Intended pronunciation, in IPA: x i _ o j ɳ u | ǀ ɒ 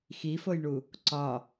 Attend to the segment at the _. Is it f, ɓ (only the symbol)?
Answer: f